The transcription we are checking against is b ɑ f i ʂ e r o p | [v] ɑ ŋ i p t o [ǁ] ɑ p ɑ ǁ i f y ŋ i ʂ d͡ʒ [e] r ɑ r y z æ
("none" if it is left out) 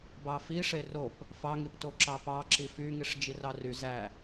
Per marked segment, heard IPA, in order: f, ǁ, i

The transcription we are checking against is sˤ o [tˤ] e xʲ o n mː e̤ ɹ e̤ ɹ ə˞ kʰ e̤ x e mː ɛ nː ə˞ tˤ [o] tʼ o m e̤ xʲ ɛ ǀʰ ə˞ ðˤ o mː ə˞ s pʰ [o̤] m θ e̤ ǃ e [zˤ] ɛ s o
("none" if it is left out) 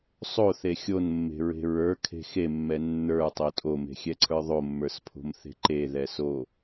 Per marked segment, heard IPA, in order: θ, o, o̤, ð

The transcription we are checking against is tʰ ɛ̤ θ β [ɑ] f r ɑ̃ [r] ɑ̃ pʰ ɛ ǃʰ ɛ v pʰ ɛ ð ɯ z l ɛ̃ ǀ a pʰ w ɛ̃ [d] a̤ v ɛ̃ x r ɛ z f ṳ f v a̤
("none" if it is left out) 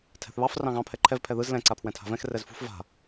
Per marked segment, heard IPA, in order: ɑ, ɣ, tʰ

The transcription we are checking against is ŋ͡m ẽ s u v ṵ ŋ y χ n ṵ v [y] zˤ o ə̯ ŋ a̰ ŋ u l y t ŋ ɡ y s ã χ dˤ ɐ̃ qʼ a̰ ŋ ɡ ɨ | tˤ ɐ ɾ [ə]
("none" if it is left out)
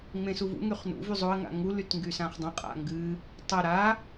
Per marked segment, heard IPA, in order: y, a

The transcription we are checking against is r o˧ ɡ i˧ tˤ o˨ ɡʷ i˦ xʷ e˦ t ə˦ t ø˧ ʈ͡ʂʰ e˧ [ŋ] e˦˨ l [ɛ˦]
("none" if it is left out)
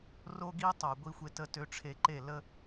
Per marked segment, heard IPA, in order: ǃ, ə˦

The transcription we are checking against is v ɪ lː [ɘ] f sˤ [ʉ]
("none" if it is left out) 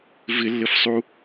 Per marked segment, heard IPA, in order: ɘ, u

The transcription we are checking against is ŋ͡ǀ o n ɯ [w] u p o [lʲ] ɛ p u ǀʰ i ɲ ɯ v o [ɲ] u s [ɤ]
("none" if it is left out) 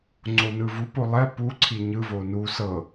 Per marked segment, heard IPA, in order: v, lˠ, n, ɤ

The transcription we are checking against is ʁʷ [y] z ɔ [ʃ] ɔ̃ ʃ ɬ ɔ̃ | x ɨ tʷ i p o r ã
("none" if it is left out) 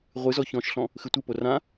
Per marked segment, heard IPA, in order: ɨ, ç

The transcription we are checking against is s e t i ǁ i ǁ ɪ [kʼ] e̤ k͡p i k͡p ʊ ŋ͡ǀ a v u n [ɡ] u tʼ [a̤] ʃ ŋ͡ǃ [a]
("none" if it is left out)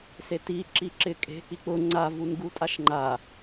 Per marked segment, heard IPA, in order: kʼ, ɡ, a, a

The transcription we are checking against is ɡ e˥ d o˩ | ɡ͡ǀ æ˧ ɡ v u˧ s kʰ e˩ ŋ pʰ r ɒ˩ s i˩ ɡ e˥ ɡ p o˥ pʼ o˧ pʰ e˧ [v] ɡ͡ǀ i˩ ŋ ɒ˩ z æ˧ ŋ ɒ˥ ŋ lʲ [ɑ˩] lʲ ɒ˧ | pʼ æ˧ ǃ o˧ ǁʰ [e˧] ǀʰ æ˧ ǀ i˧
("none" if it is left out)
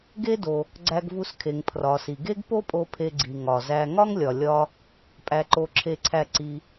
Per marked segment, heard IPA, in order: none, ɒ˩, e˧

